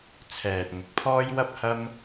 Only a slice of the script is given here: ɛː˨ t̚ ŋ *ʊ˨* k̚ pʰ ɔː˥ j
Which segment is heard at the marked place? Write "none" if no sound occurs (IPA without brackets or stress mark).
ʊ˨